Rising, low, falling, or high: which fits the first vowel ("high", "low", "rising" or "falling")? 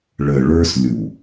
low